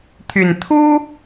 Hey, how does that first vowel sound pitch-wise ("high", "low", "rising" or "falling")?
low